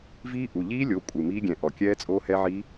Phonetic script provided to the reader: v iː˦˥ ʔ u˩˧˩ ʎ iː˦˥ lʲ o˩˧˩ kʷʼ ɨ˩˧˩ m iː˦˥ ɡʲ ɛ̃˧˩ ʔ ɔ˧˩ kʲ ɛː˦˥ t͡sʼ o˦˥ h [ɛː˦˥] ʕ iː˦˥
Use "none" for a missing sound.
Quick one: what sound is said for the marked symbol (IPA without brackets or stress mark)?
ɛ˦˥